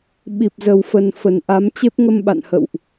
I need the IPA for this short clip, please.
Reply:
ɓ i˨˩ p̚ z ə˨˩ w f ə˨˩ n f ə˨˩ n ʔ a˨˦ m t͡ɕ e˦˥ p̚ ŋ ə˧ m ɓ a̰˧˨ n h ə̰˧˨ w ʔ

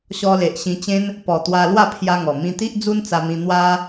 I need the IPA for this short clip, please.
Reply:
ɕ ɔ˧ l e˨ ʔ ɕ ĩ˧ t͡ɕ ẽ˦ n | p ɔ˨˩ t̪ w a˧ l w a˥˧ pʰ j a˧ ŋ ɔ˨˩ m ĩ˧ t̪ i˦ ʔ d͡z u˦ n t͡s a˧ m ĩ˧ n̪ w a˦

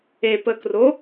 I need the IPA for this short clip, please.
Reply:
e p ə k r o

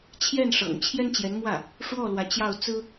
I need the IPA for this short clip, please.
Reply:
t͡ɕʰ j ɛ˥˩ n ʂ ɤ̰˨˩ ŋ t͡ɕʰ j ɛ˥ n t͡ɕ j ɛ˧˥ n m w ä˥˩ | ʂ w ɔ˥˩ l w ä˧˥ t͡ɕ j ɑ˥˩ ʊ̯ t͡s ɹ̩˥

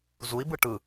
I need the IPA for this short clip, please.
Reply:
z u i̯ b ɯ ʈ ɯ

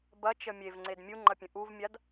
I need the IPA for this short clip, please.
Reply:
b ɐ t͡ʃ ə mʲ e v ŋ͡ǀ e d mʲ u ŋ͡ǃ ɐ pʲ ə̃ ʔ u v mʲ a d

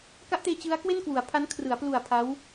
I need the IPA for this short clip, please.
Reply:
k a˦˥ ʔ t eː˧ t͡ɕ ɯ˦˥ a̯ k w e˥˩ n k w u˩˦ a̯ pʰ a˦˥ n kʰ r ɯ˩˦ a̯ p l u˨˩ a̯ pʰ a˦˥ w

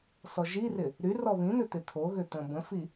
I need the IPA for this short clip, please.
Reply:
s ɔ ʒ i r ɪ | ɾ y r ɔ β ĩ n̪ ʏ t̪ ɪ t̪ʰ o ɣ ʏ t̪ ə̃ b ə̃ f i

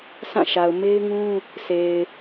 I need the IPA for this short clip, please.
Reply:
s ã˦˨ ʃ a˨ ʊ̯ m e˦ ɪ̯ ŋ ũ˦ | sʰ e˨ ɪ̯

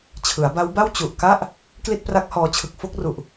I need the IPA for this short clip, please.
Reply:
t͡ɕʰ ɯ˩˦ a̯ b a˦˥ w b a˥˩ w t͡ɕ u˨˩ ʔ k a˥˩ ʔ | k l i˥˩ t̚ p r a˦˥ k̚ h ɔː˧ t͡ɕʰ ɯ˨˩ k̚ f o˥˩ k̚ r u˨˩ ʔ

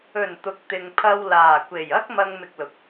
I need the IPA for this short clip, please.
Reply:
ɵ˨˩ n t̪ ʊ˨ k̚ t̪ ɪ˨ ŋ pʰ ɐ˧ w l aː˨˩ kʷ e˨˩ j ɐ˥ k̚ m ɐ˧ ŋ m ɪ˧ k̚ l ʊ˨˥ k̚

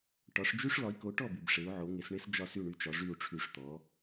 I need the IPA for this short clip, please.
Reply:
ʈ ɒ˩˥ ʂ d͡ʒ y˥ ʂ l ɒ˩˥ i̯ k o˩˥ ʈ ɔ˥˩ b y˩ b ʂ e˩˥ u̯ ʕ o˩˥ ŋ e˩˥ s ɳ e˥ s d͡ʒ ɒ˥˩ s y˥˩ ɳ y˧ t͡ʃ ɒ˩˥ ʐ y˥˩ u̯ ʈ͡ʂʰ y˧ ʂ t̪ ɔ˩˥

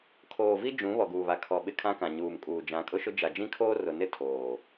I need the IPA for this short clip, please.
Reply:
kʰ oː˨ v i˦ d͡ʒ ũ˨˦ β ɔ˨ ɡ uː˨ β a˨ kʰ ɔ˨ ɓ ɪ˦ kʰ ã˦ k ã˨ ɲ uː˨ m kʼ uː˨ d͡ʒ ã˨˦ kʼ ʊ˦ ʃ ʊ˦ d͡ʒ a˨ d͡ʒ ĩ˦ kʰ oː˦ r ʊ˨ n ɪ˦ tʰ oː˨

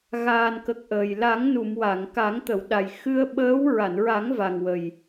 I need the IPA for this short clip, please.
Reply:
ɣ aː˨˩ n k ə˨˩ k̚ ʔ əː˨˩ j l a˨˩˦ ŋ n u˨˩˨ m w a˨˩˨ ŋ k a˨˩˦ ŋ t̪ ə˨˩˨ w ɗ a˨˩ j x ɨ˧ ə̯ ɓ əː˧˥ w ɹ a˨˩˨ n ɹ a˨˩˦ ŋ v a˨˩ ŋ w ə˨˩ j

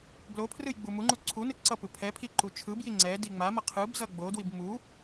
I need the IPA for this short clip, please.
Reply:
b l o pʰ r ɯ j ɡ͡b u m u ŋ͡ǃ u ǀʰ u n ɯ ǀ ʌ p ɯ pʰ ɛ pʰ i ǃ u t͡ʃʰ ɯ b j i ŋ͡ǀ ɛ d i ŋ͡m a m ʌ qʰ ɯ b z ʌ ɡ͡b o d w i b m u

